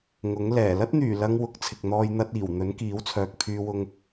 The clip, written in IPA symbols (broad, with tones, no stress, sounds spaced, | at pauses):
ŋ ʊ˨˥ ŋ l ɛː˨˩ l ɐ˥ t̚ n̪ yː˨˩ l ɐ˧ ŋ w ʊ˨˥ k̚ t͡sʰ ɪ˨ k̚ n̪ ɔː˧ j n̪ ɐ˧ t̚ iː˨˩ w n̪ ɵ˨˥ n k iː˨˥ w t͡sʰ œː˨ k̚ pʰ yː˨ w ʊ˨ ŋ